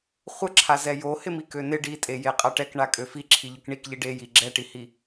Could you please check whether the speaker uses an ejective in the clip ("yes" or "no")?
yes